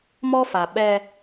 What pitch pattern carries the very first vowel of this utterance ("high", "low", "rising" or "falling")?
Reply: high